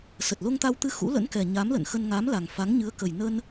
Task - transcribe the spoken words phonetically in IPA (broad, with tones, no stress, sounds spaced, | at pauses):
s ə˨˩ t̚ l o˧ ŋ t̪ a˧ w t̪ ɨ˧ x ṵ˧˥ l ə̰˧˥ n k ɛ˨˩ ɲ a˨˦ m l ə̰˧˨ n x ə˧ n ŋ a˨˦ m l a˨˩ ŋ f a˨˦ ŋ ɲ ɨ˨˦ ə̯ k ə˨˩ j n ə˧ n